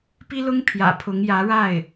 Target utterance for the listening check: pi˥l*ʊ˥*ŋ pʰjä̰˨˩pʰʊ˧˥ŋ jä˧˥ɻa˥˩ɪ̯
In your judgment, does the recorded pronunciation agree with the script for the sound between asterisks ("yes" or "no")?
yes